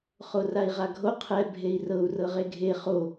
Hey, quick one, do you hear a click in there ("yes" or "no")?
no